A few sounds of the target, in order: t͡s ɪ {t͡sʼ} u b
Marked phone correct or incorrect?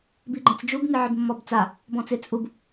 correct